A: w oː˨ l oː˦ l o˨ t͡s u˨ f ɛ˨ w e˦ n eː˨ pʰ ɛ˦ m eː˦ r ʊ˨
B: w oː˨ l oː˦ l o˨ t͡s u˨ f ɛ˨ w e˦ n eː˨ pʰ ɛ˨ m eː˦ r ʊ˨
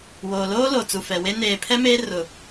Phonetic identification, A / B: A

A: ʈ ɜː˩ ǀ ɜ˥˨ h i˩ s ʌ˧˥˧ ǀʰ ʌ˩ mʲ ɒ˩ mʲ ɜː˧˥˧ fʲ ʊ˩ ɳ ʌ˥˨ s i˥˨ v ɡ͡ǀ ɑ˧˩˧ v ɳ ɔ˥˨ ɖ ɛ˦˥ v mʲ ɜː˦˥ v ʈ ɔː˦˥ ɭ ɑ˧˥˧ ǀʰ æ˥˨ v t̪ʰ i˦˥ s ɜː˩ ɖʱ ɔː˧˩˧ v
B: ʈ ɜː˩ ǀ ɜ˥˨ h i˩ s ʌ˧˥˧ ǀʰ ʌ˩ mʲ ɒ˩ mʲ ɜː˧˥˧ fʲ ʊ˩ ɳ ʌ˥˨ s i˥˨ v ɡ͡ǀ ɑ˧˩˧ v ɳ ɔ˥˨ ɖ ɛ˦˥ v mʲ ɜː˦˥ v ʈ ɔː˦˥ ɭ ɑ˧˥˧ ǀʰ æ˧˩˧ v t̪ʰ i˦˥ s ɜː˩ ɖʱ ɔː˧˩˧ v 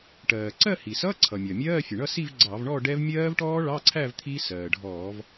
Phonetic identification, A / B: A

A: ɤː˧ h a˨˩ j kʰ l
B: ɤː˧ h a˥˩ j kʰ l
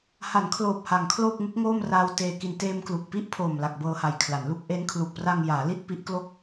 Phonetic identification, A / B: A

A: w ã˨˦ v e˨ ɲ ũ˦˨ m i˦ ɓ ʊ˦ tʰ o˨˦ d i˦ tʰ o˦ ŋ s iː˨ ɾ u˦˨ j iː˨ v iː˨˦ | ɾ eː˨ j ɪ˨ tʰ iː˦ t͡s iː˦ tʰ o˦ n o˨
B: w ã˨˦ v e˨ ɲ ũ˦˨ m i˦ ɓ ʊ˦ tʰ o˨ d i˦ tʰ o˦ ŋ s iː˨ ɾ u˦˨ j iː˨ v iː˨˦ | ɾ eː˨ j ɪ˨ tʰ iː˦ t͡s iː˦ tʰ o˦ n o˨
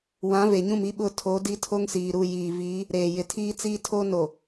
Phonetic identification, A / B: A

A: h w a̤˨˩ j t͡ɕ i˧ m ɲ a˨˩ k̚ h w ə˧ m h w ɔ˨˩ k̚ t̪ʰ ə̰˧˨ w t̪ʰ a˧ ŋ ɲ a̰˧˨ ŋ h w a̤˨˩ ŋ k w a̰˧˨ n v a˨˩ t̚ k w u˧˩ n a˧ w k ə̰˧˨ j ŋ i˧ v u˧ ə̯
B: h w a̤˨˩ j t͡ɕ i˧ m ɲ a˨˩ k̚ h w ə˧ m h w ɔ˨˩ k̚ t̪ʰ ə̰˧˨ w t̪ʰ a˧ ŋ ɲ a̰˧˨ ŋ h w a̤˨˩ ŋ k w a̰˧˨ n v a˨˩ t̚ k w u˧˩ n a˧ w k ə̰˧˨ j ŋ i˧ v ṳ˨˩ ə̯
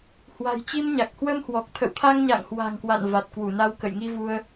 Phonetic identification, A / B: A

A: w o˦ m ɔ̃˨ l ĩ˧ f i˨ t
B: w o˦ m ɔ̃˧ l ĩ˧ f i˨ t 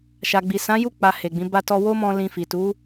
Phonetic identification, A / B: B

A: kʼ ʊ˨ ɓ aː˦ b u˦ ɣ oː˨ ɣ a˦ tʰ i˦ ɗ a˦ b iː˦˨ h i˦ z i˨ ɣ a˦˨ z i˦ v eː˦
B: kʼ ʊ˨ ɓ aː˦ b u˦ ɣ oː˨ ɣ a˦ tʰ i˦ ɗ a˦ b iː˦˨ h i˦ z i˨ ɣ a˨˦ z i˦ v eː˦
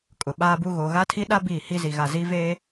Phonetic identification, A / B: A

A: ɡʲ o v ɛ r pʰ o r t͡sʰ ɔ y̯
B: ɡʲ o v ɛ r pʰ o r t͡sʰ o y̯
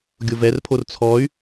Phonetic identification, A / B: A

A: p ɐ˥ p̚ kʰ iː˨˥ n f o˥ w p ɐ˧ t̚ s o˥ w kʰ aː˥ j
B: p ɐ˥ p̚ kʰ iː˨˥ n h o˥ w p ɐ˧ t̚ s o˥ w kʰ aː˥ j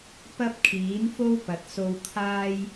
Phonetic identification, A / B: A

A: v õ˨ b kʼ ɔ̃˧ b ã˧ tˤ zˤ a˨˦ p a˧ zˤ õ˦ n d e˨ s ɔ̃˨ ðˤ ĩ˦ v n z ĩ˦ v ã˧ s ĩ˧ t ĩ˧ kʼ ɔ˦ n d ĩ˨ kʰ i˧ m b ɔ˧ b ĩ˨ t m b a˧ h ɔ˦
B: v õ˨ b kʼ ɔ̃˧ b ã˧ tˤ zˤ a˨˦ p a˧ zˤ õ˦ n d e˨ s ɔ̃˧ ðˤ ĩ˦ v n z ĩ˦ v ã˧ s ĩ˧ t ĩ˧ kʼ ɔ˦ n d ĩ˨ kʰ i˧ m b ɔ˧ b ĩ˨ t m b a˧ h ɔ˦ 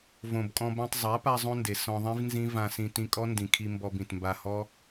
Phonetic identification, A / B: B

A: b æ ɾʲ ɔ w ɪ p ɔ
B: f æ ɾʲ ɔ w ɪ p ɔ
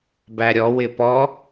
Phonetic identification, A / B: A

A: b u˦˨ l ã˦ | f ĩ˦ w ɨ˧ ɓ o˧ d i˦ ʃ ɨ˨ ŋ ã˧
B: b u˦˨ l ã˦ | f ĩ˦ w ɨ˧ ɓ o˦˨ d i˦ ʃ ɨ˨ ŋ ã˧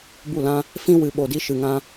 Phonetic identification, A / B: A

